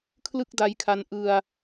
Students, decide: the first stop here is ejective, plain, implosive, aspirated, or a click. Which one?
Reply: aspirated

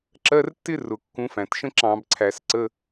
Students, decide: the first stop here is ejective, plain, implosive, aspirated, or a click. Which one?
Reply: click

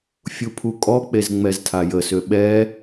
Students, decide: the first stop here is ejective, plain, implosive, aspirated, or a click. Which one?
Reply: aspirated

